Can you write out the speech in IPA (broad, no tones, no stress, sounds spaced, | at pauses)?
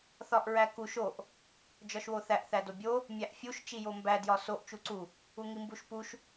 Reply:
θ ɒ ʔ ɹ æ k u ʃ o ʔ | d͡ʒ ɒ ʃ w o θ æ ʔ θ æ d o bʲ o | mʲ æ ʔ fʲ u ʃ t͡ʃ i j o m b æ d j ɒ s o ʔ t͡ʃ u ǀ u | u ŋ i m b u ʃ p u ʃ